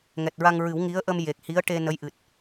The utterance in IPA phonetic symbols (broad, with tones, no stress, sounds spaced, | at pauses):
ŋ ɛ˨˩ t̚ ɹ a˧ ŋ ɹ ɨ˨˩˦ w ŋ i˧˥ ə̯ ʔ ə˧ m j e˨˩ k̚ h i˧˥ ə̯ ʈ e˧ n ə˧˥ j ʔ ɨ˨˩ t̚